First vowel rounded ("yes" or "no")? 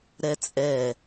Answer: no